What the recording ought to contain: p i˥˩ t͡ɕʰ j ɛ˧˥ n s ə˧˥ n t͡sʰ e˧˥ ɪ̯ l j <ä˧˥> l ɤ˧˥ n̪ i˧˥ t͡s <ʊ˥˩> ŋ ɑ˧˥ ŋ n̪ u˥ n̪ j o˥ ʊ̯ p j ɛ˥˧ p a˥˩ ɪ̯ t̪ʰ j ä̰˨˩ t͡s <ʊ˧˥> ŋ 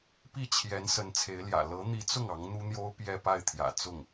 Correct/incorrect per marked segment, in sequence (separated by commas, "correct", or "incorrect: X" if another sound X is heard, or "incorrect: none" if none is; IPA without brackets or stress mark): incorrect: ä̰˨˩, correct, incorrect: ʊ˥˩